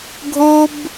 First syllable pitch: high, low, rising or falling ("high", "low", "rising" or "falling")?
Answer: high